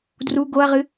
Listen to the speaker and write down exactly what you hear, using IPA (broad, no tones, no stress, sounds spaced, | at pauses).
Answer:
d r u ɡ o ɐ̯ ʁ ɨ